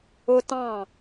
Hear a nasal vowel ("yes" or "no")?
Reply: yes